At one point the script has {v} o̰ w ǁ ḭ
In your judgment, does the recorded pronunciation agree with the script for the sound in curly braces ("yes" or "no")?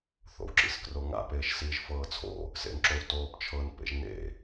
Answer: no